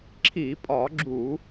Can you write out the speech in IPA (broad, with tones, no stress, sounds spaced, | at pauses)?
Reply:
ǁʰ i˧˩˧ pʼ ɒ˧˩˧ ɡ͡ǁ u˧˩˧